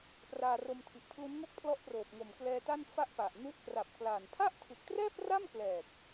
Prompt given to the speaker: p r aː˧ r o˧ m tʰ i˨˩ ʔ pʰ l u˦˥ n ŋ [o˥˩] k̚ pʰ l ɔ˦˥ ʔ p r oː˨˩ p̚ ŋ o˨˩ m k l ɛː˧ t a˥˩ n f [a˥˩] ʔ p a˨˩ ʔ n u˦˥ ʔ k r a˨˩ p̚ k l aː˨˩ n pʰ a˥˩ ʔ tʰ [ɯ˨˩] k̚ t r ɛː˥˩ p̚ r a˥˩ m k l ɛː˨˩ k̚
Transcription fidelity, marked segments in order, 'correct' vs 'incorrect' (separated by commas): correct, correct, correct